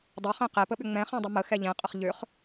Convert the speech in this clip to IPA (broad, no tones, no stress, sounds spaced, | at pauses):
dˤ ə χ ẽ q e p ə ɓ ʏ ŋ͡m ɛ̃ χ ɛ̃ dˤ ə m ə x ɛ ʎ ẽ qʼ ə χ ʎ ʏ χ